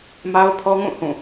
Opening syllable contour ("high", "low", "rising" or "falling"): high